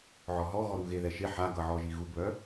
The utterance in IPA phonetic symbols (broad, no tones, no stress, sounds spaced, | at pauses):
ʕ ɔ ɦ ɔ ɣ ɔ ɾ u ɣ e ð ɛ ʃ e ħ a ɡ ʌ ʕ ɔ ʒ i ɣ u ɡ β œ